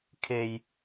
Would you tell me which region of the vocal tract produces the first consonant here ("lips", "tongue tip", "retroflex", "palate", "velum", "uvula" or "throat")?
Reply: velum